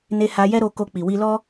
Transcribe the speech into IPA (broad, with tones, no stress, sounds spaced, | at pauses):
n e˧ h a˧ j ɛ˦ ɾ o˧ k o˧ k͡p i˨ w i˧ l ɔ˦